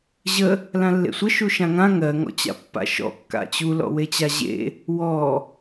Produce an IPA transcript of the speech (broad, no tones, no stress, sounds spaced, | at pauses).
ʑ ə | l ã lː ḛ sʷ ə ʃ u ʃ ã ŋ ã ŋ ɜ ŋ ɔ̰ t͡ɕ a̰ pː a̰ ʃ ɔ̰ kː a̰ t͡ɕ u l ɔ̰ w e t͡ɕ a ʑ ḛ | w ɔ